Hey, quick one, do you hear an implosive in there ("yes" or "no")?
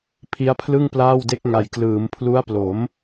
no